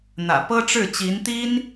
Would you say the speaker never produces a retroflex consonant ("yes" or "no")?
no